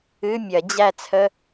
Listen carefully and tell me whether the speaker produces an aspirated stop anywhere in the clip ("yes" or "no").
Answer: yes